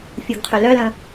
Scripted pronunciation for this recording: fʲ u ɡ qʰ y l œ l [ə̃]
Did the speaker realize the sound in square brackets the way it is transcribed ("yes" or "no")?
yes